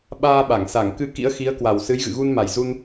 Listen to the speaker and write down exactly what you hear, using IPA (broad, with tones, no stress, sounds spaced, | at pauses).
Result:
ɓ aː˧ ɓ a˧˩ ŋ s a˧˩ ŋ k ɨ˧ k ḭ˧˥ ə̯ x i˨˦ ə̯ k w a˨˩ w s ɨ˨˦ j ɣ ɨ̰˧˨ ɣ u˧ n m a˨˩ j z u˧ n